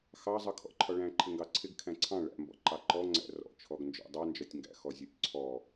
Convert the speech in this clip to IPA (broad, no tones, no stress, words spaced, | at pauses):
xɑzˤʌ kʰɔ̰ǃʰɒɭæ̃ ǃʰɪŋɡɑǀʰɪɡ kʰæ̃ǀʰɑ̃ ɭæ̰mbɔ̰ ǃɑǃɔŋ͡ǀæ̰ rɔ̰t͡ʃʰɔɡnd͡ʒɔ̰ dˤɑnd͡ʒɒtʲŋɡæ̰xɔ zʲɔtʲǀʰɔ